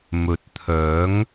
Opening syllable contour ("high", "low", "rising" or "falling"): rising